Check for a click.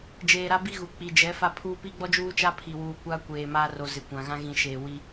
absent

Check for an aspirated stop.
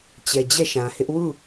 absent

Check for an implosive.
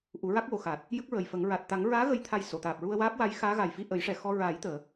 absent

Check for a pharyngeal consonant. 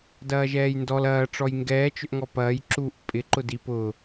absent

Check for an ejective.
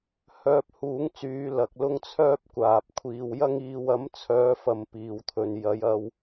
absent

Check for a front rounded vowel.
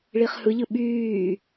present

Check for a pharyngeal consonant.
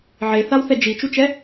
present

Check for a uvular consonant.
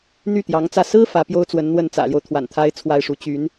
absent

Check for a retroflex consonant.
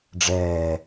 present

